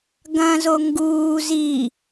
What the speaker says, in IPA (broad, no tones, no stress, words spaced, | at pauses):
ɡɐ̃ zoŋɡuː zi